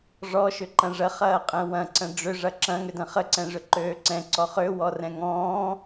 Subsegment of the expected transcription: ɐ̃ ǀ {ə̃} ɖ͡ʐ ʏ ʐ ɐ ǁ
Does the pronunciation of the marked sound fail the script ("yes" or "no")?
no